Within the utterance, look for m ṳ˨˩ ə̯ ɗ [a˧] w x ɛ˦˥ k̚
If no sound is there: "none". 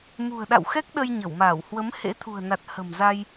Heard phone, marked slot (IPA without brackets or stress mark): a̰˧˨